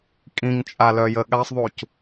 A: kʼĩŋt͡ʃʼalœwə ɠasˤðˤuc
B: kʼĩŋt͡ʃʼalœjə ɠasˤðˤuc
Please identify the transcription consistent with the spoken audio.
B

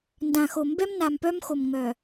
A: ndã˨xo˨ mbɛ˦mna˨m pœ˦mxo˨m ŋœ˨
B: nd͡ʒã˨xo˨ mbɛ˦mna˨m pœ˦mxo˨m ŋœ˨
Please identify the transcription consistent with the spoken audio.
A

